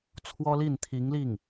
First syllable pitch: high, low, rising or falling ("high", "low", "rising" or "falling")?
high